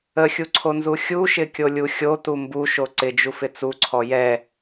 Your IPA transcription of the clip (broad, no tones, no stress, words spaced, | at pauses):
əxʲuǀʰonzu xʲuʃɪkʲolʲu xʲotu mbuʃo ǀɪd͡ʒufɪ t͡suǀʰɔ jɛ